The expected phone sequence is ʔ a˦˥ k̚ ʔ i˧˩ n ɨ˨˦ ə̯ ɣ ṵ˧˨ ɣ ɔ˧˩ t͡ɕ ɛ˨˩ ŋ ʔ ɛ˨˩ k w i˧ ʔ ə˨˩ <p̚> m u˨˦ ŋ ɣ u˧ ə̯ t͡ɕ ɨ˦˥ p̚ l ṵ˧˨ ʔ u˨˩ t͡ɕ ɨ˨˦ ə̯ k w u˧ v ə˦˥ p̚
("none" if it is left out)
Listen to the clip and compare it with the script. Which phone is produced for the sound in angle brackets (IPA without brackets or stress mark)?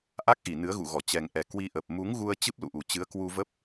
p̚